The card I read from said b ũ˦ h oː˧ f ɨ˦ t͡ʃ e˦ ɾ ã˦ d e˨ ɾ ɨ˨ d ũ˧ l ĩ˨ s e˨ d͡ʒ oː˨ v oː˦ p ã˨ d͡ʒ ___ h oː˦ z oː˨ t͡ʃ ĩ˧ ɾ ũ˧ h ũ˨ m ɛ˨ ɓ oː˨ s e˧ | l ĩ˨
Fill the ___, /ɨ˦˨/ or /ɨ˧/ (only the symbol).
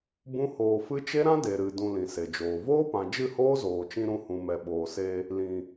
ɨ˦˨